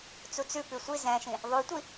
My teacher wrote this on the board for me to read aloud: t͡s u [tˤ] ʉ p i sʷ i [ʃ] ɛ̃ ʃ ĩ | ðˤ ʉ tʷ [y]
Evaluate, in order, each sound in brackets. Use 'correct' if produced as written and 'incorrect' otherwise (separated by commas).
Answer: incorrect, incorrect, incorrect